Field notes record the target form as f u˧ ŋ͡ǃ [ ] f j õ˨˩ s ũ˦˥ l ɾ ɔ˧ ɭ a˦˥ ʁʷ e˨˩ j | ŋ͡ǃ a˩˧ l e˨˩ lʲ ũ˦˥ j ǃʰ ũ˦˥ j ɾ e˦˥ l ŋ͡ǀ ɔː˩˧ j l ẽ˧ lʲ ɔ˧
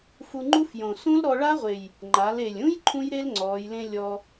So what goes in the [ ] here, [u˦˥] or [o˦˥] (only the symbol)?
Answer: u˦˥